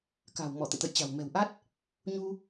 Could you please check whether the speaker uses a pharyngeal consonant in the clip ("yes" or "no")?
no